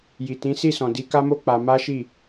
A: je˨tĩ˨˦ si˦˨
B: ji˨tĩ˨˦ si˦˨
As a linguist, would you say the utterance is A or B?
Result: B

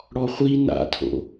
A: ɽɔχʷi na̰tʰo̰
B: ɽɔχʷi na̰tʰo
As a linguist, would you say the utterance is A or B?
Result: A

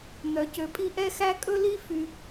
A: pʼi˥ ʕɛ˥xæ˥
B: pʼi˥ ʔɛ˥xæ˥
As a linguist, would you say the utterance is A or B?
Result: B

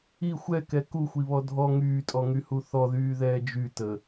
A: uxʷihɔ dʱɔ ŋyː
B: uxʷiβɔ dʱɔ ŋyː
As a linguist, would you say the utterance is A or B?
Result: B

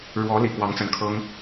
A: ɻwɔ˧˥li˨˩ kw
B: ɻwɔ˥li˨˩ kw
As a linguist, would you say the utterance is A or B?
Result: A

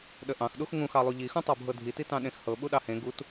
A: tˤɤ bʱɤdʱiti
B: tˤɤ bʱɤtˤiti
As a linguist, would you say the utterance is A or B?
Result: A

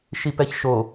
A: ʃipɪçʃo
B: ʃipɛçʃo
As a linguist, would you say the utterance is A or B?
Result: B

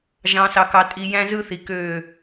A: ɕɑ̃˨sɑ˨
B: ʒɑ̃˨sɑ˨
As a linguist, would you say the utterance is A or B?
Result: B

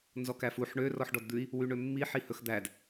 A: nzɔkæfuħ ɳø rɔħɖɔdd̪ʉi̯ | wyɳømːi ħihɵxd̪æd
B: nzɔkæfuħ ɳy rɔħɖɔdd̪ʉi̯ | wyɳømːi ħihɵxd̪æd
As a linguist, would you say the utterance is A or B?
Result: A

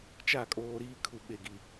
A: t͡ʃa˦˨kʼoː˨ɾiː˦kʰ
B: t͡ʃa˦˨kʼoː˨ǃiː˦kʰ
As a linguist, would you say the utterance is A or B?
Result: A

